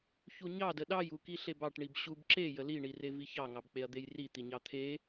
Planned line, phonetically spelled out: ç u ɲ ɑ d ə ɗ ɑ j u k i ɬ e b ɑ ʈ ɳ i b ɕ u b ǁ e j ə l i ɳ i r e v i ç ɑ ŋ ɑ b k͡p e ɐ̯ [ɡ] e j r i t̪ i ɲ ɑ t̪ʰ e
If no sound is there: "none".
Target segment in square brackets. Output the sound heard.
d̪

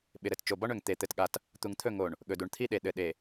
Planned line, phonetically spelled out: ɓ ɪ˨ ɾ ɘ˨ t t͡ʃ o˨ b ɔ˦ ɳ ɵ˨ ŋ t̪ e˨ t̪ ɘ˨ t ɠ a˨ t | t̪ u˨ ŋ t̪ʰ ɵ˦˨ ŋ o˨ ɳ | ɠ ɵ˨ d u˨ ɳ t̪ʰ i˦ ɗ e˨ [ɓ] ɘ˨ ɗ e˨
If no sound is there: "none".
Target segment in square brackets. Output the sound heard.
ɗ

